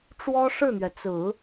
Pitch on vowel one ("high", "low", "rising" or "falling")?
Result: high